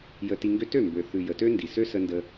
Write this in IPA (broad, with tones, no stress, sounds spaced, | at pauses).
j ə˧ t i˧ ŋ ɡ ø˦ t ø˦˨ m b ø˨ θ ʉ˨ j ə˨ t ø˦ n d i˨ s ø˦ s ə˧ n d ə˧